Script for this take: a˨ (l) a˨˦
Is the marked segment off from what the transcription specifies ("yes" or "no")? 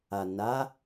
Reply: yes